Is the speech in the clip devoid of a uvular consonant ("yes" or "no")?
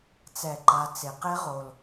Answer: no